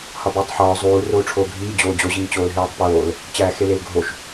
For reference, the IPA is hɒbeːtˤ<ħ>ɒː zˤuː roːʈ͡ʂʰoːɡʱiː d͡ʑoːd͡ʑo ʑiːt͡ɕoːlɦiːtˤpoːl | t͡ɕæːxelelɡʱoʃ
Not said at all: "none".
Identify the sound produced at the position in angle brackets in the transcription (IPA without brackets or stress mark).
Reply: ħ